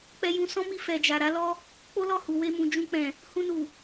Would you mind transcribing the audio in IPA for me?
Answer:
k͡p ɛ˧ j ũ˧ s ɔ̃˦ m i˧ f ɛ˨ d͡ʒ a˨ ɾ a˨˦ l ɔ˦ | k͡p o˦ l ɔ˦˨ h u˨ w e˧ m ũ˨ d͡ʒ ũ˧ k͡p ɛ̃˨ | h ũ˧ n u˨

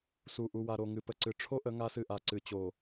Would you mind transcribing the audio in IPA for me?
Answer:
s u˨ ʔ u˨ w a˨ ɾ o˨ ŋ ɨ˨ p ə˨ ǀ ɨ˨ ʈ͡ʂʰ o˦ ʔ ə˨˦ ŋ a˦ s ɨ˦˨ ʔ a˨ ǀ ɨ˨ t͡ɕ o˨

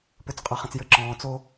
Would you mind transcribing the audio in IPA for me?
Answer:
p ø˨ t͡s qʼ ʌ˨ χ ə̃˨ t͡s j ɘ˧ ǁ ɔ̃ː˨ t͡s o˦

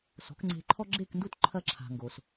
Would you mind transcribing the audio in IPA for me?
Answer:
s o̤˩˥ k ŋ͡ǀ e̤˧ ǃʰ ɔ˥ ɡ͡ǁ e˥˩ k n d u˥˩ t ǃʰ ɐ˧ ǁʰ a̤˩ ŋ ɡ o˩ s

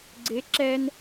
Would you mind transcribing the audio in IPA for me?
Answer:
ɡ͡ǀ ɪ ǁ ɛ n

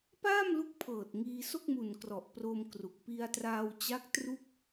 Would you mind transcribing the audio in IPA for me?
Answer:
p aː˥˩ m l u˦˥ k̚ pʰ ɤː˨˩ t̚ ŋ iː˧ s o˥˩ k̚ m u˨˩ n k r ɔ˨˩ ʔ p r oː˧ m k r u˨˩ k̚ p i˧ a̯ t r aː˧ w t͡ɕ a˦˥ k̚ t r u˥˩ k̚

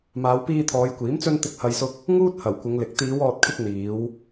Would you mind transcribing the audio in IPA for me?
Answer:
m aː˨˧ w p iː˧ t̪ʰ ɔː˨˧ j kʷ iː˨˥ m t͡s ɵ˧ n t̪ ɪ˨ k̚ h ɐ˨ j s ʊ˧ k̚ | ŋ uː˥ t̚ h ɐ˨˩ w kʷ ɪ˨˧ ŋ l ɪ˨˥ k̚ t̪ iː˨˧ w ɔː˨ t̚ kʰ ɪ˧ k̚ n̪ iː˨˧ w

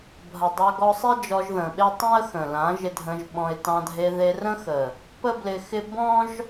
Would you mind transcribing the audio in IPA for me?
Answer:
bʱ ɐ˨ dˤ a˧ ɡ ɔ˧ sˤ e˦ d͡ʒ ɔ˧ ʒ ð ə̃˨ ɓ e˦ tˤ ɛ̃˦ ə̯ x ə̃˨ l ã˨˦ ʒ ɪ˧ dʱ ə̃˧ ʒ ɓ ɔ̃˧ ɪ̯ t ɑ̃˧ dʱ e˧ ð e˧ r ə̃˦ x ə˨ | p ə˦ b l ɪ˧ x ɪ˦ b ɔ̃˦ ʒ

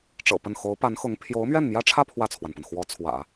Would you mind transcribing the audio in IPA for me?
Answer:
ʈ͡ʂ ɤ̰˨˩ p ə˥˩ n x o˧˥ ʊ̯ p a˧˥ n x ʊ˧˥ ŋ pʰ j o˧˥ ʊ̯ m ɥ ɛ˥˩ n m j ä˥ ʈ͡ʂʰ ä˥˧ pʰ w ä˥˩ t͡sʰ w a˩ n p ə˩ n x w ɔ˧˥ t͡sʰ w ä̰˨˩˦

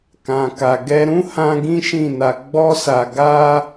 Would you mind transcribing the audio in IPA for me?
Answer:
k ã˨ k a˨ ɡ ɛ˧ ɾ ũ˦ h ã˧ ɡ ĩ˦ ʃ ĩ˦˨ n a˧ ɡ͡b ɔ˦ s a˧ ɡ a˦

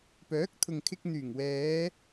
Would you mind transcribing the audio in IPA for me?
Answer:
p œː˨˥ k̚ t̪ʰ ʊ˨ ŋ kʰ ɪ˧ k̚ n̪ yː˨˩ ŋ w ɛː˨˧

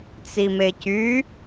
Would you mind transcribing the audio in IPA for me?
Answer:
t͡s i m e c y

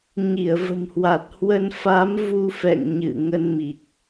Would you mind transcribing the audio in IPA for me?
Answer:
ɲ i˧˩ ə̯ v ə̤˨˩ m h w a˨˩ t̚ h w ə˧ n f a˨˦ m v u˧ f ɛ̰˧˨ ŋ ɲ ɨ̰˧˨ ŋ ə˧ n m i˨˩ k̚

